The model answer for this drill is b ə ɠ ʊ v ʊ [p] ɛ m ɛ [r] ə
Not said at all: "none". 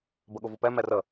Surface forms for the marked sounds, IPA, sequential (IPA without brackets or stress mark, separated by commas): p, r